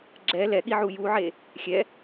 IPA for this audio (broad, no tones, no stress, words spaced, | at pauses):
ɡ͡ǁɛ lɛɠiʕu juʕe | xʲɛ